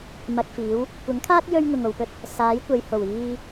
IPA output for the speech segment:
m ɐ˧ k̚ f iː˨˥ w | kʷ ɐ˨˥ ŋ kʰ aː˥ t̚ j ɵ˥ ɥ ŋ ʊ˨ ŋ o˨ w p ɵ˥ t̚ | s aː˨˥ j kʷ ɐ˨˧ j h o˨˩ w iː˧

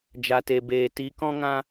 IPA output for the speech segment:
d͡ʒ a˧ t e˧ b eː˧ t i˧ k ɔ̃˦ ŋ ã˦

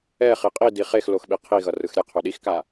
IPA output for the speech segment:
ɛ χ i qʼ i d i χ e x l o x ɓ i qʰ i ɣ ʌ r ɯ x ɾʲ ɛ qʰ o ɗ i x k a

